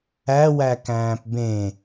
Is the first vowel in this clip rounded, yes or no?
no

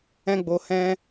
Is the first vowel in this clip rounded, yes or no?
no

